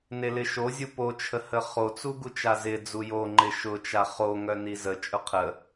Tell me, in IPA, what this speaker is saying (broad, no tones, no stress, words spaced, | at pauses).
nelɪʃozʲu po t͡ʃʰəhəχot͡su ɡut͡ʃazɪd͡zu joŋ͡ǃɪ ʃʊt͡ʃa χoŋœ nizət͡ʃʼʊ qʰə